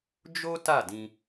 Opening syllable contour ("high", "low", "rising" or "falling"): high